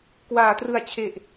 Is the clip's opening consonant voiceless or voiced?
voiceless